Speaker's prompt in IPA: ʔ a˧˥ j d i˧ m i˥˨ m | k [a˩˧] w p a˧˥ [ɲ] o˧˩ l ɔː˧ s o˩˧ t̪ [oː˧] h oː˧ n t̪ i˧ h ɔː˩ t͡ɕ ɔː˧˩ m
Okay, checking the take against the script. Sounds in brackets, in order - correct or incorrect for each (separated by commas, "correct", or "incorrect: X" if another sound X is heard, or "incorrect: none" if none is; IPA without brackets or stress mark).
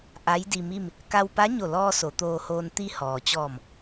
incorrect: a˧, correct, correct